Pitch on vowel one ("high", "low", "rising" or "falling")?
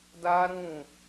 high